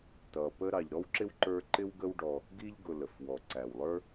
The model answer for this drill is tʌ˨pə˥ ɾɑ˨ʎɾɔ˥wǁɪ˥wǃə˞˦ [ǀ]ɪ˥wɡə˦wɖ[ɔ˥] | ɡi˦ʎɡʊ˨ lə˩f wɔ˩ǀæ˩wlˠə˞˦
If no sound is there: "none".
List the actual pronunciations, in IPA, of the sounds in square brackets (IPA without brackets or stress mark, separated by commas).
ǃ, ɔ˨